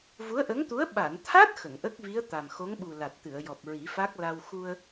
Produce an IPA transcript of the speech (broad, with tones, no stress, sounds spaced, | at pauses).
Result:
v u˧˥ ə̯ ʔ ə˧˥ ŋ t̪ u˧˥ ə̯ ɓ a˨˩˨ n t̪ʰ a˦˥ t̚ x ə˨˩˨ ŋ ʔ ə˦˥ k̚ v i˧˥ ə̯ t̪ a˨˩ m x o˧˥ ŋ ɓ u˨˩ l a˨˩ t̚ t̪ ɨ˨˩˨ ə̯ j ɔ˨˩ p̚ ɹ i˨˩˦ f a˦˥ k̚ l a˧ w x u˧ ə̯